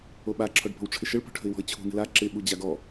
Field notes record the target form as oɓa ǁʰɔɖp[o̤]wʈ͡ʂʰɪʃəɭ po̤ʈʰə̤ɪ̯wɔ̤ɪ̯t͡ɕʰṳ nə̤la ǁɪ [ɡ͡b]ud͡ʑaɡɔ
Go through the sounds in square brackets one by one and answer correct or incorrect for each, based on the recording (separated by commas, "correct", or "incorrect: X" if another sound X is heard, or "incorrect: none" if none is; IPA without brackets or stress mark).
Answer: correct, incorrect: ɓ